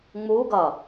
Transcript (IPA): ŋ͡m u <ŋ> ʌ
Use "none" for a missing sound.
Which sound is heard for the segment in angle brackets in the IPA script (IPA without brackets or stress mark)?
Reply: ɡ